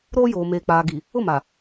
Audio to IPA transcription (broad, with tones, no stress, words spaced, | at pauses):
ɾoː˦joː˨ meː˨k͡paː˨ɡi˨ | ʊ˦˨ma˨